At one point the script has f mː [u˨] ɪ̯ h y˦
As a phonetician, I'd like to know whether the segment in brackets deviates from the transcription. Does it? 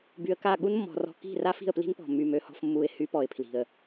yes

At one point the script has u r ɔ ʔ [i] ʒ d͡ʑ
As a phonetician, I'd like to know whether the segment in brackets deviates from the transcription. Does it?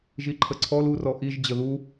no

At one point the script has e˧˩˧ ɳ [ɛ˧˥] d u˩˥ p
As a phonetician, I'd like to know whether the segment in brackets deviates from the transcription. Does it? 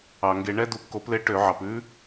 no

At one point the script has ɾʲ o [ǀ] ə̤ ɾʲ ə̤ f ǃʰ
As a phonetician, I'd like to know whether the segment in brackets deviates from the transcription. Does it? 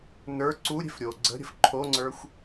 yes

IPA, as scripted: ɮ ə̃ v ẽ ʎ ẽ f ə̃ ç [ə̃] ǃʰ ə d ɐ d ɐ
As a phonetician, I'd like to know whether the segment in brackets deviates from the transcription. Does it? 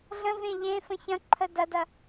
yes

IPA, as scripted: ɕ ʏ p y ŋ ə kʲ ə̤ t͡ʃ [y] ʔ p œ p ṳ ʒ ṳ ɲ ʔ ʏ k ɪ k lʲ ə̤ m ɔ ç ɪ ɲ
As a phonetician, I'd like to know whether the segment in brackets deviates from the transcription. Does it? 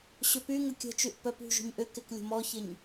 no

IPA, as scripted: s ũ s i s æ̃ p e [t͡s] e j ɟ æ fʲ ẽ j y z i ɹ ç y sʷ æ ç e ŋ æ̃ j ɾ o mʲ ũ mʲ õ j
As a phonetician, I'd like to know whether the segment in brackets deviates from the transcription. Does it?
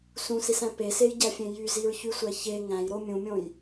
yes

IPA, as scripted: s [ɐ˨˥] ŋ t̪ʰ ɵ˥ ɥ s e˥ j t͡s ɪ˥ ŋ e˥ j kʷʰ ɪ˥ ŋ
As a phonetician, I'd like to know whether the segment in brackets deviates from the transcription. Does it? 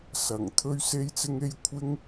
yes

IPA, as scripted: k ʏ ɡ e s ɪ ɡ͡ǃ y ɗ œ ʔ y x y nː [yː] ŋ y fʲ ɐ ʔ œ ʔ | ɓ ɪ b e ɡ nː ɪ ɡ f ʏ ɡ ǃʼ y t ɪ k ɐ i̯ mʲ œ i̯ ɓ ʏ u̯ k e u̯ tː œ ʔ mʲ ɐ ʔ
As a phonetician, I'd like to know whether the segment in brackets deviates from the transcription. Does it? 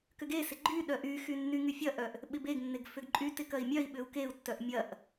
yes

